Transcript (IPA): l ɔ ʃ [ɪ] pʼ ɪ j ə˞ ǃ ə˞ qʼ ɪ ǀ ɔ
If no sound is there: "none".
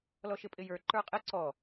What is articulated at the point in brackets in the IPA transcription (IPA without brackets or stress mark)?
ɪ